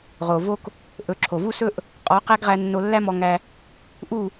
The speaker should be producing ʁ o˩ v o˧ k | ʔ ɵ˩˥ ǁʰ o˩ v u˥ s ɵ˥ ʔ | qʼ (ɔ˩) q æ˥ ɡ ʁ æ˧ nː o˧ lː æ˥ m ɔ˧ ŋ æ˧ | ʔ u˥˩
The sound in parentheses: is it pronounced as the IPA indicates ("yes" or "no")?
no